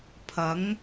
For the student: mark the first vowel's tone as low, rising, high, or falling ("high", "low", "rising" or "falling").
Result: rising